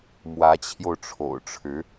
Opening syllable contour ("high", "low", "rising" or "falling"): rising